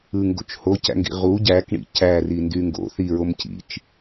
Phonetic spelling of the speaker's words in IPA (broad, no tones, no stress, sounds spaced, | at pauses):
ɯ ŋ ɡ o̰ t͡ʃ h o c æ̰ ŋ ɡ ḭ ʁ u ɟ æ k ɳ ḭ c æ r i n d y ŋ ɡ o̰ θ i ɹ o m c ḭ t͡ʃ